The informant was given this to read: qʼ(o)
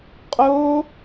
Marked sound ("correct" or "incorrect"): correct